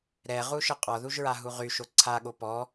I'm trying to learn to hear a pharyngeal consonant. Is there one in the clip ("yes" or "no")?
no